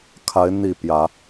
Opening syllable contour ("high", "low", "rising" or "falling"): rising